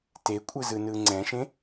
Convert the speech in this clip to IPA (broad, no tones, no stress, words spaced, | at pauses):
tekʷʼɯzɯ nɯŋ͡ǀɛ̃ʃẽ